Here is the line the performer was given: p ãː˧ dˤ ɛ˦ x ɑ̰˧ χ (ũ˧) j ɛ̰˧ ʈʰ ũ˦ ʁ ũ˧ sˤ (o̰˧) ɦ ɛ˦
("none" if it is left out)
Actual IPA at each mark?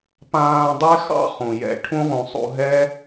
ũ˨, ṵ˧

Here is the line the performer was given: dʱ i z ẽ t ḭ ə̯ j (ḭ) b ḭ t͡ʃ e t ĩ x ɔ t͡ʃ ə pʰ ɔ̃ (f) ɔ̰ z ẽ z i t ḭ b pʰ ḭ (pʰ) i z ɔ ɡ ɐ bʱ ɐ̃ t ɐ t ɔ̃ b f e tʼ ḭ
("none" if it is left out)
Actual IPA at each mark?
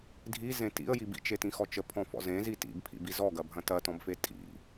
i, f, b

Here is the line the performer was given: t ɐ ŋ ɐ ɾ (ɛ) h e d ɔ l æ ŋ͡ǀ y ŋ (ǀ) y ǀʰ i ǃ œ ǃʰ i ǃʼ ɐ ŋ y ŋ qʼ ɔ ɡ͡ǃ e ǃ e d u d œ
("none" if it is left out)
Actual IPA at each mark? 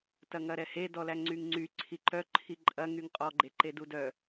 ɛ, ŋ͡ǀ

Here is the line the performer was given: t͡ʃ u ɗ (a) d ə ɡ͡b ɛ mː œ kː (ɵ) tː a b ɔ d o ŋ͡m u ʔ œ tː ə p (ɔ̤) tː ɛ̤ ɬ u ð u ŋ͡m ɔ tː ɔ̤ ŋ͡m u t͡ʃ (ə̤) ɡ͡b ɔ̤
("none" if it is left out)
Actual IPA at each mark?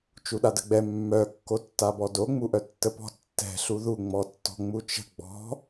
a, o, ɔ̤, ə̤

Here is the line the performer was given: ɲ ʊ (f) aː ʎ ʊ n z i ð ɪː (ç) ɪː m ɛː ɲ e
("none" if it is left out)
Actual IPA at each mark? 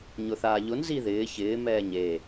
θ, ç

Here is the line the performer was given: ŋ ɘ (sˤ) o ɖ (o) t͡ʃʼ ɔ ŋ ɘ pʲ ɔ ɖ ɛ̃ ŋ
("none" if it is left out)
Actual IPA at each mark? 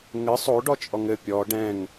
sˤ, ɔ

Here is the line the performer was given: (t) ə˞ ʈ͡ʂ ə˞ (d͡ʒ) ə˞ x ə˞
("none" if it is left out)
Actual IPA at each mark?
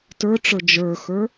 t, d͡ʒ

